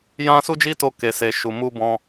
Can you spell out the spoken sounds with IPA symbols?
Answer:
j ã˧ s u˦ d͡ʒ i˦ t o˧ k e˨ s e˨ ʃ u˨ m u˧ b ɔ̃˧

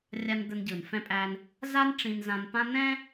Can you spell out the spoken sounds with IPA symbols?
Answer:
rʲ a˧ n d̪ ə˧ n ɟ ɯ˩ n f ɛ̃˥ pʼ æ˥ n | z a˥ n ʈ͡ʂ ĩ˧ n z ã˧ n p ã˥ n ɛ̃˥

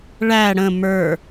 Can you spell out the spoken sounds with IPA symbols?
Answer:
ɭ æ ɽ ə̃ m ə˞

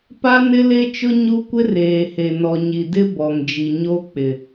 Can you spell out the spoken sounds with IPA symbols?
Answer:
p a˦ n ɪ˦ l e˦ t͡ʃ ʊ˦ ɲ u˦ kʷ ɪ˦ r eː˨ h e˨ n ɔ˨ ɲ i˨ d ɪ˦ b ɔ˨ ŋ d͡ʒ i˨ ɲ o˦ k͡p ɪ˨

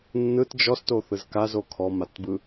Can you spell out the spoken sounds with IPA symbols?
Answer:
nː ɯ t d͡ʒ ɔ s t o θ ɯ z k a z o kʰ ɔ m a t b ɯ

